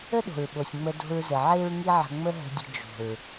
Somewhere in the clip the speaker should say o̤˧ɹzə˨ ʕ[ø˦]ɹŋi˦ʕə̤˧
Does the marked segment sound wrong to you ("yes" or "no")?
yes